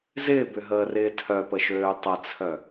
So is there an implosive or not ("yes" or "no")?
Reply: no